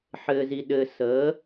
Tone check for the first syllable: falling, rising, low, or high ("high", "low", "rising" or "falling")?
high